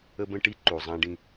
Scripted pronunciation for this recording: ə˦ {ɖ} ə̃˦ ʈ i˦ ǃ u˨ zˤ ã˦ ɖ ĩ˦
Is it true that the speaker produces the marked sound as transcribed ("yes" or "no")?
no